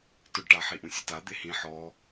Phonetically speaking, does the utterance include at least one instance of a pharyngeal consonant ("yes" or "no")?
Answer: yes